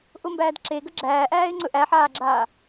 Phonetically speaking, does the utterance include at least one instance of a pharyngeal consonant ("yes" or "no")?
yes